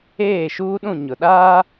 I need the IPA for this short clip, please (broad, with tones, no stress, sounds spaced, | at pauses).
eː˦˨ ʃ uː˦ ɗ ũ˦˨ ɲ ʊ˨ ɗ aː˦